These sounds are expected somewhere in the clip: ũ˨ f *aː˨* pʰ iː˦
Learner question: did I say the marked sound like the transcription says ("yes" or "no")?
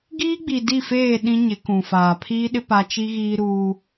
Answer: yes